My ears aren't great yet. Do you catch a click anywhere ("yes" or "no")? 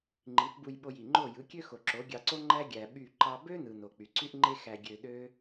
yes